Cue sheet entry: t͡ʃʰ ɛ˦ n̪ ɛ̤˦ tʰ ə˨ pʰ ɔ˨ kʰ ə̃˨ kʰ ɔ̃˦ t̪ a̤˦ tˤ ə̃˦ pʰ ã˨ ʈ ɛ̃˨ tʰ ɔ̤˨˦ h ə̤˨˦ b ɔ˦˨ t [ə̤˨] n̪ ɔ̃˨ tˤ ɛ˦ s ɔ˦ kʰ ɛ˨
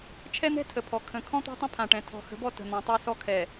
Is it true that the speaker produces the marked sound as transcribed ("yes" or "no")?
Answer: yes